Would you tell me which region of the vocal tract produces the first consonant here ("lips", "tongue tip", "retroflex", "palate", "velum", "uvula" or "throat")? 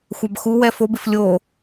velum